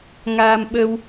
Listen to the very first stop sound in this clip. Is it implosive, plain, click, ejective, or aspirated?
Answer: implosive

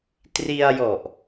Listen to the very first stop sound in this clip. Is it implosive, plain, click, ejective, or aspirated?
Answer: plain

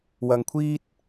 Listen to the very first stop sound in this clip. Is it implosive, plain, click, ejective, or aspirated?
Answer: aspirated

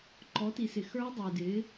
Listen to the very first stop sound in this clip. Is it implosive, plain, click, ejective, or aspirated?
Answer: click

